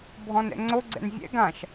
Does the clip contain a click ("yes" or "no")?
yes